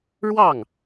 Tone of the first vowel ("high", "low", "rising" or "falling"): falling